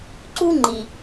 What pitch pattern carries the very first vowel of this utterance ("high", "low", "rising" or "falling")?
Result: high